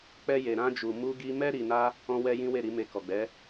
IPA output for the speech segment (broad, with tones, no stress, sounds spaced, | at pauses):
k͡p ɛ˧ j e˨ ɾ ã˧ d͡ʒ u˨ m u˧ ɡ i˧ m ɛ˦ ɾ i˧ n a˦ | ɔ̃˦ w ɛ˦ j ĩ˦ w e˦˨ ɾ i˧ m e˧ k ɔ˨ ɡ͡b ɛ˨˦